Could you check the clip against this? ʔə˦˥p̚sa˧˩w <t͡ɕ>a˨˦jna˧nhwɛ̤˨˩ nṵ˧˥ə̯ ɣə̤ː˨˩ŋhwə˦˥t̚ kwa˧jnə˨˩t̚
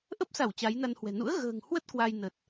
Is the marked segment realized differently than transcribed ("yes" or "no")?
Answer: no